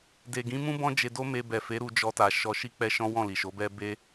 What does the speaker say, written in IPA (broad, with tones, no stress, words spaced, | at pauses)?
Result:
de˨ɡĩ˨˦mũ˦ bɔ̃˦d͡ʒe˧do˦me˧ bɛ˨fe˨˦ ɾu˧ d͡ʒɔ˧ta˨ ʃɔ˧ʃi˦k͡pɛ˦ʃɔ̃˦ wɔ̃˦˨li˨ʃo˨˦bɛ˦ be˦